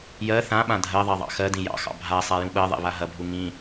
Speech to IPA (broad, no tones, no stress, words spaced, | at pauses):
jɜ θã ɓãdʱɜðˤɜ ðˤɑ̰xɜdĩ jɑ̰xɑ̰ bʱa sˤajũɓɜðˤḛ βaɦɐbʱu ŋĩ